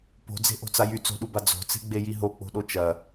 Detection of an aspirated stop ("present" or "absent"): absent